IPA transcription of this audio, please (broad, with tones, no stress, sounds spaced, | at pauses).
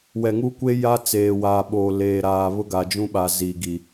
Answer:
w ɛ˨ ŋ u˦ kʷ e˦ j a˦ t͡s eː˨ w aː˨ ɓ oː˨ l eː˨ ɾ aː˨ β ʊ˦ ɡ a˨ d͡ʒ ũ˦ ɓ a˨ z i˨ ɡ i˨